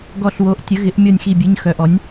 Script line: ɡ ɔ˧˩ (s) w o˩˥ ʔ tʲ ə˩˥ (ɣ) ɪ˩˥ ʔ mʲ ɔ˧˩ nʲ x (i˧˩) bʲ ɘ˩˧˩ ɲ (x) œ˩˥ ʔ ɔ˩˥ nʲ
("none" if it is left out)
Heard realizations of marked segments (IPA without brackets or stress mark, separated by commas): ɬ, ɣ, i˧˩, x